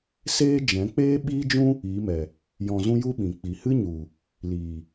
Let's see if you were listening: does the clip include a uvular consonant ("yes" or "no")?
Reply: no